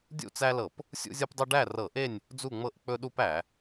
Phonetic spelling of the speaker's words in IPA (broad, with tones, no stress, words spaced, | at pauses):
dʲṵ˥˨t͡sæ˦lɤ˧˩˧p | sʲṵ˦zʲɤ˦pdˤɵ˦ ɖæ˥˨rɤ˧˩˧ʔe˥˨nʲ | d͡zu˥˨ŋ͡mɤ˥˨ʔ k͡pɵ˦ɗu˦p æ˧˩˧